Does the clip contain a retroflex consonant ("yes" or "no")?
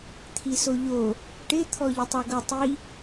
yes